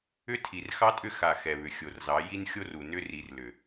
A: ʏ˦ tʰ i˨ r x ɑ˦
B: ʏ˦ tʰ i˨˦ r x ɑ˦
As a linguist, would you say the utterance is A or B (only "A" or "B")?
A